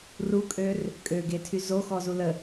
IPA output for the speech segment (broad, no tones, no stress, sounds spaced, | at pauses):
r u kʼ ø r | kʼ ø ɡ e tʰ y z o x ɔ z u l ə